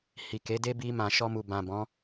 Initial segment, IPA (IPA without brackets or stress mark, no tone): h